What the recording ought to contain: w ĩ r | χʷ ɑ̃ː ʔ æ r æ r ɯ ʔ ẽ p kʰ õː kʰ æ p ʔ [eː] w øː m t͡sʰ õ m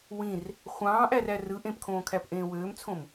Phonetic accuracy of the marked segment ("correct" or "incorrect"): incorrect